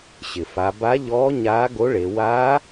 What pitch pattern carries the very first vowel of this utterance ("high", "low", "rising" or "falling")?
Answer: low